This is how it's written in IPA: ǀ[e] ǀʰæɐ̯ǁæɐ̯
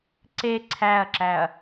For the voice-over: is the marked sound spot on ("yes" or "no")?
yes